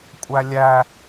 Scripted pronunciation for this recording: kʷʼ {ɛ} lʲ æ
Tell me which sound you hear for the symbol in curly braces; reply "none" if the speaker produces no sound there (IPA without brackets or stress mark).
æ